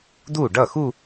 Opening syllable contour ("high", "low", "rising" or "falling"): falling